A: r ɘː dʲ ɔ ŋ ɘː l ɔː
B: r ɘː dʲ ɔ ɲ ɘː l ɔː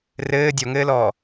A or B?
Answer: A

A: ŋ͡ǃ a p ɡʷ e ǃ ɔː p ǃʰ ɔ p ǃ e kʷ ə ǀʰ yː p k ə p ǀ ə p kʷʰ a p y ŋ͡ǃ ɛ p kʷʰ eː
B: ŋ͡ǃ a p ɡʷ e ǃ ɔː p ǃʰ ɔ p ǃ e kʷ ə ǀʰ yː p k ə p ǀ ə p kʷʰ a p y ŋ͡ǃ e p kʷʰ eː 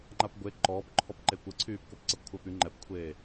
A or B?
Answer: A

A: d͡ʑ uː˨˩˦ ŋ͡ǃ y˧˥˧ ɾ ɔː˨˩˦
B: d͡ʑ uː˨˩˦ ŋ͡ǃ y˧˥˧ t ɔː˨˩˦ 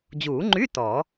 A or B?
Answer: B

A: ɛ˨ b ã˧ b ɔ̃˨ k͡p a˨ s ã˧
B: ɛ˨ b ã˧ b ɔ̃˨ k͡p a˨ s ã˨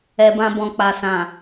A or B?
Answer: B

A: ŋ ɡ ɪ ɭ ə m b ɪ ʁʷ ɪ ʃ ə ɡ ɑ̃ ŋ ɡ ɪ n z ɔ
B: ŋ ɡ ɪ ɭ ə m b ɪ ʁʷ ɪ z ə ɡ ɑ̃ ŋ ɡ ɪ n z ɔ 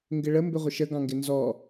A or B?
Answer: A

